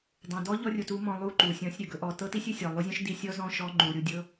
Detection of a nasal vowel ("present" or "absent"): present